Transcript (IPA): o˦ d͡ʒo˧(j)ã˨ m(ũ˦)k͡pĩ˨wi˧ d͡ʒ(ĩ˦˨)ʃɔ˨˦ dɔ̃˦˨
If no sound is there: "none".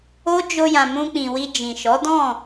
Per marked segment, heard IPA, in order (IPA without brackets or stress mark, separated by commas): j, ũ˧, ĩ˨